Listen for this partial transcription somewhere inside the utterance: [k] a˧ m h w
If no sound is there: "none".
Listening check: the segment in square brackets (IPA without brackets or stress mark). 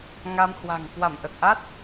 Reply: ŋ